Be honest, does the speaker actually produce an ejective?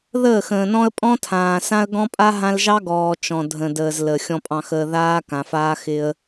yes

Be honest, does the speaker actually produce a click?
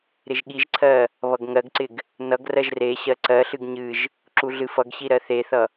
yes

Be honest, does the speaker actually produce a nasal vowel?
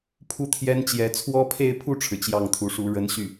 no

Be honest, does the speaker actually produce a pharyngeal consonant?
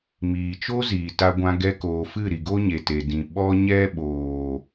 no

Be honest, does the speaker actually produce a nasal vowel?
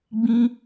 yes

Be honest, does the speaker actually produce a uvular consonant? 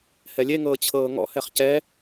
yes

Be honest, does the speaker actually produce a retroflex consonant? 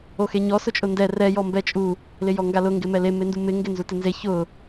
no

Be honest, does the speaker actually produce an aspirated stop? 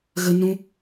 no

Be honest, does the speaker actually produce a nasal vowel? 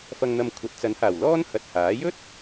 no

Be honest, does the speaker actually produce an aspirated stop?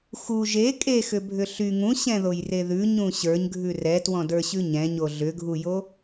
no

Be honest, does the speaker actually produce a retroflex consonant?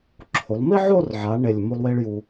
yes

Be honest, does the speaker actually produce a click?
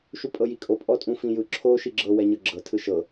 yes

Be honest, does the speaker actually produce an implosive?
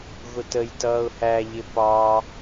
no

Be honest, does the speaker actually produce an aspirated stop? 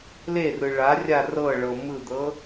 no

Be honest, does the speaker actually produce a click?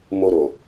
no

